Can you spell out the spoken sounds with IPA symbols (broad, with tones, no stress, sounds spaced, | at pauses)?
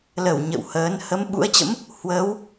l ə˧˩ w ɲ ə̰˧˨ w h əː˨˦ n h ə˨˦ m ɓ ṵ˧˥ ə̯ t͡ɕ ə̰˧˥ m | h w əː˨˦ w